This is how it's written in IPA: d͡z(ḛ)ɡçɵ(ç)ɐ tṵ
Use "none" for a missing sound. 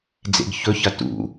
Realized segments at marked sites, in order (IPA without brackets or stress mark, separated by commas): ḛ, ç